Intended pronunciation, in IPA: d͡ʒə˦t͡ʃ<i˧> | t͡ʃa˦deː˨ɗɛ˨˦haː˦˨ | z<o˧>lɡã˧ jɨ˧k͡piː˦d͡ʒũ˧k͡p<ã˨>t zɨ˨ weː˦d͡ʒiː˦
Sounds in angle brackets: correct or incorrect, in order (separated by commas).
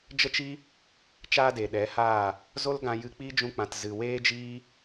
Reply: incorrect, incorrect, correct